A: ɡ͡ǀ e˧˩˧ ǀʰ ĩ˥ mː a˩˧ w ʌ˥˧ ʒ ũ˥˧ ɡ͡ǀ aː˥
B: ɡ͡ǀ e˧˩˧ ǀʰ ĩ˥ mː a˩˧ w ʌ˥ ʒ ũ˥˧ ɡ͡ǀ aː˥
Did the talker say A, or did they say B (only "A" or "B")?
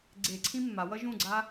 B